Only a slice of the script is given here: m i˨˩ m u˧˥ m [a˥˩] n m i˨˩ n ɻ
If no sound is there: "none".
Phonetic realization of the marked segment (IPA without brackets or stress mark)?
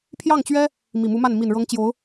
a˥˩